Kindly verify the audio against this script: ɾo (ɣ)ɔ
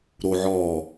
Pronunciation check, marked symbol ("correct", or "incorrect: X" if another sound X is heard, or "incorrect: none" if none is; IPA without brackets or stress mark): incorrect: ʕ